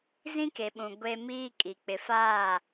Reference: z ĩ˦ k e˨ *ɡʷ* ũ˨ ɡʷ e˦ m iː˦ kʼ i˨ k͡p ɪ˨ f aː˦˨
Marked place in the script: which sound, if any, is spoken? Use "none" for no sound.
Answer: ɓ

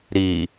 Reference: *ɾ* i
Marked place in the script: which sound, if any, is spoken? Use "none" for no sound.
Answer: ɾ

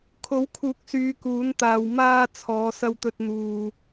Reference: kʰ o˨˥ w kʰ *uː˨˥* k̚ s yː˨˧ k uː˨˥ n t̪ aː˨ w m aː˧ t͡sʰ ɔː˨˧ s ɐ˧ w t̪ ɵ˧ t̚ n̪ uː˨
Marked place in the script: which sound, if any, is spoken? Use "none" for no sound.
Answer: uː˨˥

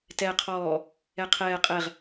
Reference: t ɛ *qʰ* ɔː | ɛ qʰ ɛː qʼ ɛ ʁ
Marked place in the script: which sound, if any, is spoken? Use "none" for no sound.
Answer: qʰ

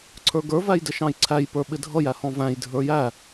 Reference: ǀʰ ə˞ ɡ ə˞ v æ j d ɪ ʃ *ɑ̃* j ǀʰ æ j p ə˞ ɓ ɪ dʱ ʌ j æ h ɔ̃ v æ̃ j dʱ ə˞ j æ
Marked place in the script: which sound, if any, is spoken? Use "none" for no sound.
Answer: ɑ̃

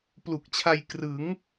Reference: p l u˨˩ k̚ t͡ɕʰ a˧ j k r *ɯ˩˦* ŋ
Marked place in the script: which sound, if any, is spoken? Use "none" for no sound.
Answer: ɯ˩˦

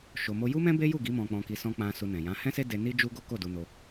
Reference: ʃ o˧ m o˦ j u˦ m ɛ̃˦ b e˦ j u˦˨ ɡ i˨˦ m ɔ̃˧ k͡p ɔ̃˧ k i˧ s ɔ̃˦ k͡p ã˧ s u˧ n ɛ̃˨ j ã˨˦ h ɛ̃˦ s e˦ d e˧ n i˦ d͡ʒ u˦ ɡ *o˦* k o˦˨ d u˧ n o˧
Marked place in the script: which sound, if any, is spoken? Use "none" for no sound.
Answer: o˦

